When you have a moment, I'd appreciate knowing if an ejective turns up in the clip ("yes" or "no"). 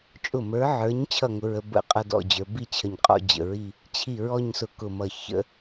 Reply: yes